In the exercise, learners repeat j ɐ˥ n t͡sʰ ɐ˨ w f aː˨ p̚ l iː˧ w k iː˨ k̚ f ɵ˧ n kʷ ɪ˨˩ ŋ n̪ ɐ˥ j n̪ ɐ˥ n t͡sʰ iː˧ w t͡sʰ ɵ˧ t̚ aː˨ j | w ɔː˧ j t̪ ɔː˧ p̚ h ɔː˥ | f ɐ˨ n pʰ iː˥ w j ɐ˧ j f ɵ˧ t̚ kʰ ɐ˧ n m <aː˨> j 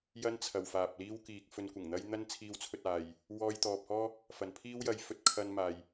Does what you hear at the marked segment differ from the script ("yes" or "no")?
no